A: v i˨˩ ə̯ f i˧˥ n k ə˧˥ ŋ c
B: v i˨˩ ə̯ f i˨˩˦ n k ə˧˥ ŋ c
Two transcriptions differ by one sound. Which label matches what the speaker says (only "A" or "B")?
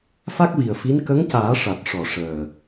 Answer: A